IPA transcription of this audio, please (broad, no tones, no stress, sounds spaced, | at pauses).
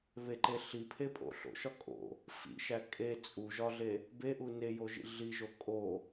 β e ǃ e ɬ i pʰ e pʼ o̰ ɬ o̰ ʃ ɒ kʼ o̰ | f ḭ ʃ æ kʼ e t͡sʼ u ʒ ɒ ɮ e | b e ʔ u n e j o ʒ ḭ ɮ i ʒ o kʼ o